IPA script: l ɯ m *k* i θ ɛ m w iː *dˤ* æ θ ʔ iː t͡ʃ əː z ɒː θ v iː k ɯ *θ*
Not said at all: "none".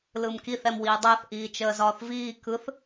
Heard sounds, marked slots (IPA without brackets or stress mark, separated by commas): k, dˤ, θ